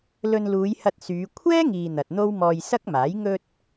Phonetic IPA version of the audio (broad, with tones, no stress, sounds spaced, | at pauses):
l ɵ˧ n l uː˨˧ j h ɐ˧ t̚ s yː˨˧ kʷʰ ɛː˥ ŋ iː˨ n̪ ɐ˨ t̚ n̪ o˥ w m ɔː˧ j s ɐ˥ k̚ m aː˨˥ j ŋ ɵ˧ t̚